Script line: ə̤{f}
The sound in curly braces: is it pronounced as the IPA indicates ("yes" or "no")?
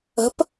no